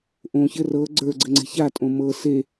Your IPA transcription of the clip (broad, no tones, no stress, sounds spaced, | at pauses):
ʔ õ ç ɘ r ɤ ɡ͡ǀ ə˞ ɡ͡ǀ ɘ ŋ͡ǀ e̤ ç a tʼ õ m ɤ s e